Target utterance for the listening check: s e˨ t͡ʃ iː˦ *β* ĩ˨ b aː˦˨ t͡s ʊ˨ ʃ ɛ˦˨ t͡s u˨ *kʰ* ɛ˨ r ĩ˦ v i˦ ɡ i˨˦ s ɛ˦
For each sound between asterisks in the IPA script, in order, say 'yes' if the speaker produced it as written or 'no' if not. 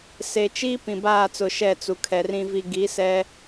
no, yes

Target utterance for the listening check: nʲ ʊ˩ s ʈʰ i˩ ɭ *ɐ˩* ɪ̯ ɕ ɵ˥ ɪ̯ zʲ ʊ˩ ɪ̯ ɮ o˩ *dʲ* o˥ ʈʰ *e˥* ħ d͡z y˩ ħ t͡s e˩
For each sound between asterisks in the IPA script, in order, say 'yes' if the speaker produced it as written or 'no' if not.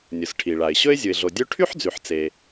no, yes, no

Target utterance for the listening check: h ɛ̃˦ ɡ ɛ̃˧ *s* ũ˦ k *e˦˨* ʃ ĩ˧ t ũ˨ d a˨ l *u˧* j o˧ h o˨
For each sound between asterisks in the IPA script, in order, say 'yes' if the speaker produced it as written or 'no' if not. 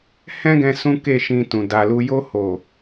yes, yes, yes

